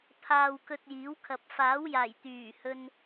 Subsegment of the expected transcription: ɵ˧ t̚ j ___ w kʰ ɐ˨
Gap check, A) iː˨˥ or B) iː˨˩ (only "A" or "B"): A